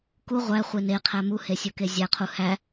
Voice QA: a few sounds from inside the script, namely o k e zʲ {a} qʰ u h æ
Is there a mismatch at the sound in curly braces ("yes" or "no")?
yes